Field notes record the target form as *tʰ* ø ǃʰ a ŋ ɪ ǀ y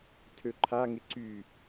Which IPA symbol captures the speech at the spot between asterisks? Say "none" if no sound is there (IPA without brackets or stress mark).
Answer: tʰ